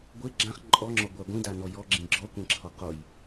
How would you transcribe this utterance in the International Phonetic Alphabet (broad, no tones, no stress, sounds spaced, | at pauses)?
ɡʷ e ɡ͡ǁ ã χ ǃʼ ɔ ŋ͡ǁ ɔ ɡʷ a ɡʷ ĩ d a n ɔ j ɔ ɡ͡ǁ ĩ ɡ͡ǁ ɔ kʷ ẽ ǁʰ ɔ q o j